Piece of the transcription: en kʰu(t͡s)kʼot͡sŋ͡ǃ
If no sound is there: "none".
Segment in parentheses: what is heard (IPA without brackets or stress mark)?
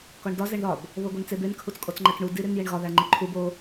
t͡s